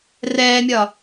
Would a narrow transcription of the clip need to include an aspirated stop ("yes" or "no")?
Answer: no